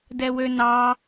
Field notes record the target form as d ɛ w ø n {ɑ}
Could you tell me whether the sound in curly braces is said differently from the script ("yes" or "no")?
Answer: no